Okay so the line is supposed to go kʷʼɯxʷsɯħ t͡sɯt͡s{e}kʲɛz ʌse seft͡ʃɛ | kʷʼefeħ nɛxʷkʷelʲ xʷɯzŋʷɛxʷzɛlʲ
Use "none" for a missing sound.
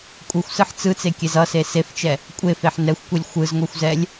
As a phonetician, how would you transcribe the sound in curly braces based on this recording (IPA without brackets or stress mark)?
e